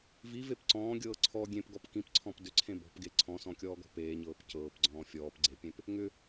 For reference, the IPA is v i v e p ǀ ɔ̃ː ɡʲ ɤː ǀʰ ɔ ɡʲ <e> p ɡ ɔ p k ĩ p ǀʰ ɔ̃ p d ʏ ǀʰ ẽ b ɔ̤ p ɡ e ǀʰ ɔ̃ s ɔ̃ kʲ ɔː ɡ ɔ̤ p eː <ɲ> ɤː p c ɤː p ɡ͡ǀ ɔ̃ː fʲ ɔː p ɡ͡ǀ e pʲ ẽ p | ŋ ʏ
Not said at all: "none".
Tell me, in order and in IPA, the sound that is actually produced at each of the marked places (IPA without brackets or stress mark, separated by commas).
ẽ, ɲ